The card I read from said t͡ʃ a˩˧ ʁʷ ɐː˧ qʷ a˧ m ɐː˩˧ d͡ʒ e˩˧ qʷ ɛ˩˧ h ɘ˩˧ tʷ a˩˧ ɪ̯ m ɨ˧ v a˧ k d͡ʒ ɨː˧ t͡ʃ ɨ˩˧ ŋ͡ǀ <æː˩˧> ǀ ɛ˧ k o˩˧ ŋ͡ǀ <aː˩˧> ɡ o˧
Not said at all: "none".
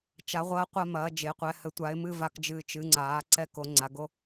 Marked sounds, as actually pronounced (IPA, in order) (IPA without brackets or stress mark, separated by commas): aː˩˧, a˩˧